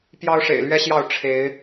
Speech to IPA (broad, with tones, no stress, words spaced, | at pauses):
pjɑ˦ʊ̯ʂḛ˨˩ɪ̯lɥɛ˦ɕjɑ˥˨ʊ̯ ʈ͡ʂʰe˨˦ɪ̯